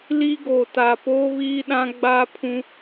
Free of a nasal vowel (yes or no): no